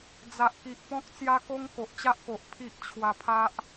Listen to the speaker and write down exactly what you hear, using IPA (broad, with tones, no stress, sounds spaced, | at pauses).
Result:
d͡z a˨ ʔ k i˨ ʔ p ɔ̃˦ k̚ t͡s j a˦ k o˦ ŋ k o˨ ʔ t͡ɕ a˦ ʔ k o˨ ʔ pʰ i˦ ʔ t͡ɕʰ w a˧ pʰ a˦ ʔ